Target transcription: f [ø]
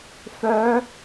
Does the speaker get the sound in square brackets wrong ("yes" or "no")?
yes